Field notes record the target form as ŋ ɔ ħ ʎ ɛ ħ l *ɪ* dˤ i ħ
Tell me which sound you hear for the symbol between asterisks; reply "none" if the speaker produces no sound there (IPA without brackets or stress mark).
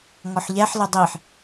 ɪ